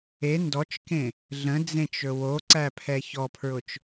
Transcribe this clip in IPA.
e ndɔt͡ʃkẽ | ɮə̃d͡zẽt͡ʃɵ woǀæpʰɛ çɔpʰɹʊt͡ʃ

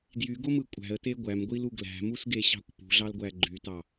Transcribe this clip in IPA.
djyɡomɯ kʷʼæ̤ə̯te ɡʷæmɡʷilu ɡlæ̤musɡeɕɑ̤kʷ pṳɮɑlɡʷæ ɡ͡ǃytɑ

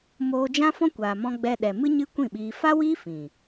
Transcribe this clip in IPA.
moː˧d͡ʒã˦fɔ̃˦ kʷaː˨mɔ̃˧ɡ͡bɛ˧ɗɛ˨ mɨ˦ɲɨ˦kʷĩ˦˨ɓiː˧ fa˦wiː˦ fĩ˨

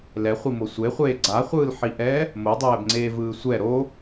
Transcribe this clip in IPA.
lɛχʷimo sʷeχʷeː ɡ͡ǀaχʷɯːlħiʔɛː | modˤɛːbŋ͡ǀeːvɯː sʷɛ ɾo

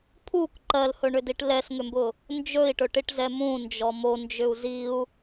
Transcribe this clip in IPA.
pʰuk ǃɜlhɵɳʏdiʈ lɛsŋʏmbʊ | nd͡ʒɵi̯ʈɵʈiʈzɛ mũnd͡ʒɔ mond͡ʒʏu̯ ziu̯

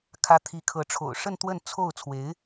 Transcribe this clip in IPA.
kʰä˧˥ t̪ʰi˧˥kʰɤ˧˥ ʈ͡ʂʰo̰˨˩ʊ̯ʂə˥˧n t̪wə˥˧nt͡sʰo˥˩ʊ̯ t͡sʰwe˧˥ɪ̯

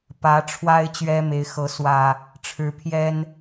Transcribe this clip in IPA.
pä˨˦ʈ͡ʂʰwa˦ɪ̯ t͡ɕɥɛ˦me˨˦ɪ̯xɤ˨˦ swä˨˩ | ʈ͡ʂʰɻ̩˨˦pʰjɛ˦n

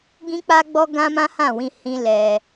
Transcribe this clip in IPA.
ɡĩ˦k͡pa˦ɡ͡bɔ˦ ɡã˦mã˦hã˦˨wĩ˧ hĩ˦lɛ˧

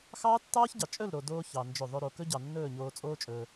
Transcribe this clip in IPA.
xɑː˦tːɑː˦çɟɑ˨ t͡ʃʼɵ˦˨lɾo˨ doː˧ çɑ˧nd͡ʒɵ˦˨ ðˤɵ˧ ɾo˨kɵ˦ɟɑ˨ nːɵː˦˨ɲoː˧t͡sʼoː˦t͡ʃʼɵː˧

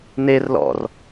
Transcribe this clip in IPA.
ner lɔ̰r

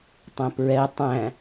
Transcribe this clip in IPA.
tˤæ̃pɹɛ tˤæ̃

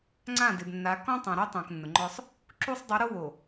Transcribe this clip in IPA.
ŋ͡ǀã˦˨dɪ˨bnːa˨˦ kɔ̃˦tˤã˨ɾu˦tˤõ˨k nːʊ˨ŋ͡ǃɔ˦sˤ | ǁu˦sˤ dˤu˨˦ɾo˦ wo˨

